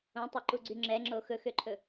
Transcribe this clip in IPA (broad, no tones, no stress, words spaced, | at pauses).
õtˤøǃuɡ͡ǀy ŋ͡ǁɛŋ͡ǁo xɵxøǃʰɵ